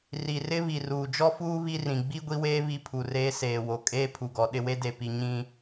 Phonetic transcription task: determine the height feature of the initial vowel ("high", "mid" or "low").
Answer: high